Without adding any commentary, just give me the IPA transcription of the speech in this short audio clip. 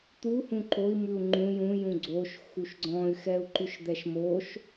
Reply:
t̪ u h ũ ǃ o i̯ m ʉ u̯ ŋ͡ǃ ũ j ũ j ũ ɡ͡ǀ o ʃ x u ʃ ɡ͡ǀ ɔ̃ y̯ x ɛ u̯ ǃ ʉ ʃ d̪ ɛ ʃ m o ʃ

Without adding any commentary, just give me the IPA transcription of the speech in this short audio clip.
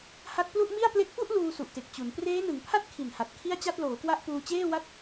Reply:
h a˦˥ t̚ p l u˥˩ ʔ m i˥˩ a̯ p l e˦˥ k̚ p u˥˩ ʔ l uː˧ s u˨˩ ʔ t e˨˩ k̚ t͡ɕ u˩˦ n p r eː˦˥ n ɯ˩˦ ŋ pʰ a˥˩ t̚ kʰ i˨˩ n h a˨˩ t̚ kʰ i˥˩ a̯ t͡ɕ a˥˩ t̚ l oː˩˦ k w a˦˥ ʔ p uː˧ t͡ɕ eː˥˩ w a˥˩ t̚

